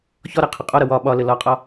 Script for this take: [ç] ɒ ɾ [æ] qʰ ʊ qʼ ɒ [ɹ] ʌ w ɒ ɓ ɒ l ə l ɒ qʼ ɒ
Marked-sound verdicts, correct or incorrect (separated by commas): correct, correct, incorrect